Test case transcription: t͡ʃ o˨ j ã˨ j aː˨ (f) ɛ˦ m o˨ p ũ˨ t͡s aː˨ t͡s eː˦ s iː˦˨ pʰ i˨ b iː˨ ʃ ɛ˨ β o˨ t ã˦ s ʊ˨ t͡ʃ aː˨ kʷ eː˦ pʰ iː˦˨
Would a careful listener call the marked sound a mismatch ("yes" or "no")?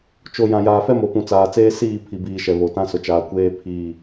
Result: no